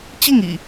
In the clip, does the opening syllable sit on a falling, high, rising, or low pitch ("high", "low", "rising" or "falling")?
falling